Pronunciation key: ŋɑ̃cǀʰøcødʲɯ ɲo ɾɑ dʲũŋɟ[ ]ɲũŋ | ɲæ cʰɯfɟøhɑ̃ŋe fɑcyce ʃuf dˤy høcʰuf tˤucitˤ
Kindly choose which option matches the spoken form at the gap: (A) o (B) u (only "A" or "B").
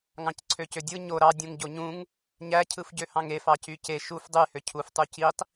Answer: A